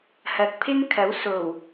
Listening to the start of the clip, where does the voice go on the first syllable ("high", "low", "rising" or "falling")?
low